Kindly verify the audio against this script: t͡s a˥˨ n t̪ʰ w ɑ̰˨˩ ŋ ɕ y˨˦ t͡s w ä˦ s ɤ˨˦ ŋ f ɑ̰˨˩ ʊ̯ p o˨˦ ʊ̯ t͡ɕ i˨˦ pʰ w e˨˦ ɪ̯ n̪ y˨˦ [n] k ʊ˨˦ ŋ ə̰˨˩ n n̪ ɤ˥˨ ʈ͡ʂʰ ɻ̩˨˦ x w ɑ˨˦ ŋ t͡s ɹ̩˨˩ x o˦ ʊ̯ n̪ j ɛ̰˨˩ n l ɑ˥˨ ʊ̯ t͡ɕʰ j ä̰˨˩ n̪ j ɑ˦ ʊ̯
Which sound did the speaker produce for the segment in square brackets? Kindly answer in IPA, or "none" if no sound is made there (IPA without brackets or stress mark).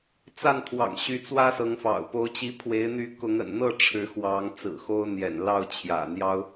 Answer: none